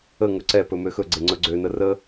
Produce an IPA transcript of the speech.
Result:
ə ŋɵǀɛpɵ møxɵɡ͡ǀe ŋ͡ǀɵɡ͡ǀønə rə

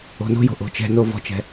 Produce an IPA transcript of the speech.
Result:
o̤no̤jo̤ ʔo̤t͡ʃɛ̤no vɔ̤t͡ʃɛ̤

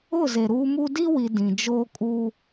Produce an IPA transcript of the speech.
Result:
ʊ˦˨ze˨ ɾuː˦mu˦ di˦wi˨ dĩ˨d͡ʒoː˦ kʼuː˦

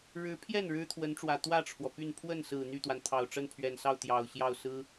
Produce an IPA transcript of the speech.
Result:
ɻɻ̩˧˥pʰjɛ˥˩n ɻɻ̩˥t̪ʰwə˧˥nʈ͡ʂwä˨˩ t̪wä˥˩ʈ͡ʂʰwɔ˩ py˥˧n pʰwə˥˩nsɹ̩˨˩ n̪y˥˩t̪wa˩n t̪ʰɑ˨˩ʊ̯ʈ͡ʂə˥˩npʰɥɛ˨˩nsɑ˥˩ʊ̯ t̪jɑ˨˩ʊ̯ɕjɑ˥˩ʊ̯ sɹ̩˥

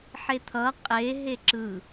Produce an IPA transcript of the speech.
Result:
ħet̪ʰʌ qʼe ɦeǁɯ

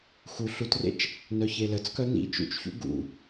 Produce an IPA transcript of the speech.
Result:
xu ɬutrḛt͡ʃ | nœçelət͡skœ nḭ t͡ʃṵt͡ʃçṵ ɡṵ

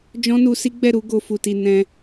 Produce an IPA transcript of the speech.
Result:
d͡ʒɔ̃˦nu˧si˦ɡ͡bɛ˦˨ ɾu˨˦ ɡo˧fu˨ ti˨ nɛ̃˧

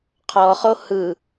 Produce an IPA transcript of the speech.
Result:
qʰɔχo hɯ

